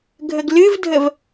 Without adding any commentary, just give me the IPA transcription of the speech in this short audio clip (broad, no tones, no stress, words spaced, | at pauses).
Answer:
ɡʱəɡlɨvdʱəv